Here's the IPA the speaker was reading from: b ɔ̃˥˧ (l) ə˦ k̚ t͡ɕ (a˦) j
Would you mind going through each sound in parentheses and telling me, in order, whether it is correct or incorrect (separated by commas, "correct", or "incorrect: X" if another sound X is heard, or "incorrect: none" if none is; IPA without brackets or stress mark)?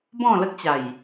correct, incorrect: a˨˩